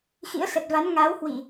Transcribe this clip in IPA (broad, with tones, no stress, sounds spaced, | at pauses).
x ḭ˧˥ ə̯ s ə˨˩ t̚ v a˨˦ n ŋ a˨˦ w h w i˧˩˨